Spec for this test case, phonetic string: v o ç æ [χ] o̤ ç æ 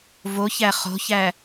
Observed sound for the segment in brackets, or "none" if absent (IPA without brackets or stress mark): χ